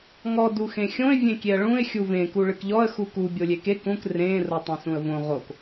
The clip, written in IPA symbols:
ŋ ɔ d u x ẽ xʲ õ ɪ̯ vʲ ẽ kʲ e ə̯ ɭ ũ ɪ̯ xʲ u v ẽ k u ɭ ɨ k ʎ ɔ ə̯ x u k u bʲ o lʲ e k e k ũ k r ẽ r o tˤ ũ s ũ ə̯ v õ ʁ o k

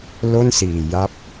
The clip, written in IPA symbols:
l o˥˩ n s iː˨˩ j a˦˥ p̚

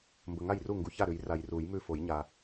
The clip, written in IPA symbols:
m b ə˨ ŋ a˥˩ j r u˥˩ ŋ ɡ u˨ ç a˥˩ ɾ ʉ˨˩˦ j r a˨ j r u˨˩˦ j m ʉ˥˩ f o˨˩˦ j ɲ a˨

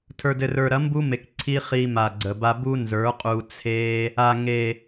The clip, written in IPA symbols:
tʰ ə˞˨ d ɘ˨ r ə˞˨ ɾ ɐ˨˦ m b u˦ m e˨ k ǀʰ i˦ χ i˧ m a˨ ɡ͡ǀ ə˨ b a˧ b u˦ n z ə˞˨˦ qʼ u˧ t͡sʰ e˦ | a˨ ŋ e˨

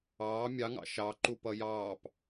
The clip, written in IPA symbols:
ɑː mʲ ɑ ŋ ɑ̰ ʃ ɑ ǃ u p ʌ j ɑː p

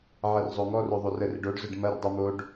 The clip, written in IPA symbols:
ʕ ɐ r zˤ o ŋ ɔ r o ðˤ o r ə r ɪ ɖ o ɖ z ʊ ɖ m ɐ r dˤ u m o ɖ

